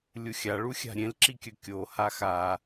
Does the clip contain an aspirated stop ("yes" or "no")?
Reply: no